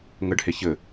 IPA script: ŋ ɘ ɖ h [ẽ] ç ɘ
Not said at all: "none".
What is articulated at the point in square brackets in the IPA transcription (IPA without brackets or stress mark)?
e